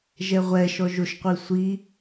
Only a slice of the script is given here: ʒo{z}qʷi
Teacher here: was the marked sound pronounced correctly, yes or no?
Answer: no